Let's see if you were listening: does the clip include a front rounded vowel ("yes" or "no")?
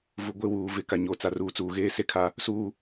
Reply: no